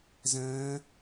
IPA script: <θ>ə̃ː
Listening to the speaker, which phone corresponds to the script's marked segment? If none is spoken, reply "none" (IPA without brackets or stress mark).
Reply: z